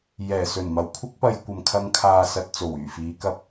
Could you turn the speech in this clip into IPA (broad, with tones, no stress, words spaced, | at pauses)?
jɛː˨˩ sɵ˨˩nmɐ˨˩w kʷʰɪ˥k̚pɐ˧j kʷɐ˨mkʰɐ˧ŋ kʰaː˨sɐ˨t̚ t͡so˨˩wyː˨˩fiː˨˧ kɐ˧p̚